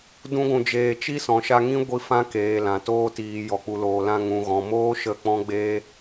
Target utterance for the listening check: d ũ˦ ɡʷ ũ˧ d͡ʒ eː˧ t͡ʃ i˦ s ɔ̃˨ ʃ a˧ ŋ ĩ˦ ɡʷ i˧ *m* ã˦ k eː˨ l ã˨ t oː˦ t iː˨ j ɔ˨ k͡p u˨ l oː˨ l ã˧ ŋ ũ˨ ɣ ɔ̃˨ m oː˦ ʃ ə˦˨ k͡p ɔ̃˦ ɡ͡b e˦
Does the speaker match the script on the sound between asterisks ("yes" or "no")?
no